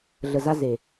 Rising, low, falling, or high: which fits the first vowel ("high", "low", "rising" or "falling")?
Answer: low